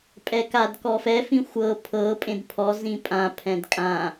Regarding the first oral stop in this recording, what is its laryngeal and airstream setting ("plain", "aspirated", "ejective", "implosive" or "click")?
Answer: ejective